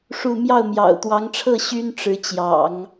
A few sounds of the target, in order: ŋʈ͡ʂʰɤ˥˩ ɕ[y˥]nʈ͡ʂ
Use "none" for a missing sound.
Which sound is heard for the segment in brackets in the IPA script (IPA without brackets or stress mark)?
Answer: y˥